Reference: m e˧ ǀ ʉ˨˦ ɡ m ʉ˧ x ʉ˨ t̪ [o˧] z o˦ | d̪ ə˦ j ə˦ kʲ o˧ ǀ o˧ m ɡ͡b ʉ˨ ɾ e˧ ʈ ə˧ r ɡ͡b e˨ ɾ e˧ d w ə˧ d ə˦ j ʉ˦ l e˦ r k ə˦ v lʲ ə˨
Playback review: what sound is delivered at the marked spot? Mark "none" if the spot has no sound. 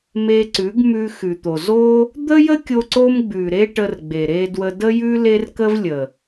o˨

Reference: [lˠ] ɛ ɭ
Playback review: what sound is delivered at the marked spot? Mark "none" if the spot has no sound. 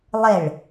lˠ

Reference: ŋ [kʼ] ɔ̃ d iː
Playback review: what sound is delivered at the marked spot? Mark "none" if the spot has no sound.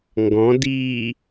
ɡ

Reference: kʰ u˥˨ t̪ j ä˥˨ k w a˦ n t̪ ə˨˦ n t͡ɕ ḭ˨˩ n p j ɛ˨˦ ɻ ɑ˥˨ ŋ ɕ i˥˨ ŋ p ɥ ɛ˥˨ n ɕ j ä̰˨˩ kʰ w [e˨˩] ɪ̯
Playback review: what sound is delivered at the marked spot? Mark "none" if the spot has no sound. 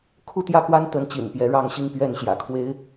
e˦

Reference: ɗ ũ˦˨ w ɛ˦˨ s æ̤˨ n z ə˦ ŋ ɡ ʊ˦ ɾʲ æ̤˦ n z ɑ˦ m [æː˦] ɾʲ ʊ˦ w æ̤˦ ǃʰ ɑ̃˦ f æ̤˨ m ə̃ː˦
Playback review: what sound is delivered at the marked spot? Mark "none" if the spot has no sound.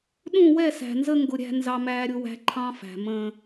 æː˦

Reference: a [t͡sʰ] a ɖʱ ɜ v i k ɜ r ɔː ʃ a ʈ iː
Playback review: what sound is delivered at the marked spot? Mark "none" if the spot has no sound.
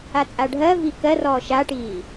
t͡sʼ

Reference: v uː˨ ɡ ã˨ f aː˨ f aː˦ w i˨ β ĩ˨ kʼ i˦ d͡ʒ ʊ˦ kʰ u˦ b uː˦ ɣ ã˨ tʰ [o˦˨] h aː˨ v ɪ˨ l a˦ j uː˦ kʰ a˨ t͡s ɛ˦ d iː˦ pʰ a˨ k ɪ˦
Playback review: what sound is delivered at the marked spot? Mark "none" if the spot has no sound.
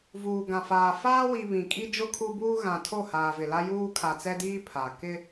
o˦˨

